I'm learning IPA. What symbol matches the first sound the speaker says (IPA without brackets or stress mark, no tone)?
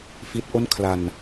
f